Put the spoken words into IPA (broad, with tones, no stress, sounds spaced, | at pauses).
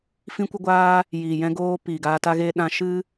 f ĩ˦ kʷ ə˦ ɡʷ aː˦ | j iː˨ j ɛ̃˧ ɡ oː˧ p iː˨ ɡ aː˧ t a˦ ɣ eː˦ ɗ ã˦ ʃ ɨ˦